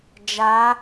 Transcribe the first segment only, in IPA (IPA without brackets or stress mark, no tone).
d͡ʒ